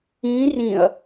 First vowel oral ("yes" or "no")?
no